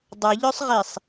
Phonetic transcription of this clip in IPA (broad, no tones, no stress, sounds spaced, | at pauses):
dˤ ʌ ʎ œ sˤ ʁ i sˤ